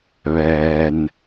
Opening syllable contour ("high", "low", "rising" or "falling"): low